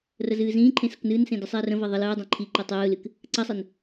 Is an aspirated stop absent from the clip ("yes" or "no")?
no